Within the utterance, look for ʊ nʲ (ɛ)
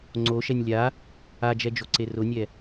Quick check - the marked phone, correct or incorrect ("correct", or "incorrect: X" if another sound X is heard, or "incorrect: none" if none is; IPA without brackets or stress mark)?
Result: correct